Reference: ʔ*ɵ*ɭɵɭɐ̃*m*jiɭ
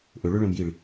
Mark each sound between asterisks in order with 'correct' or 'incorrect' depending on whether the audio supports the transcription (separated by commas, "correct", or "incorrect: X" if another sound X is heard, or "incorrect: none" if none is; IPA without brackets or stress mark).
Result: correct, correct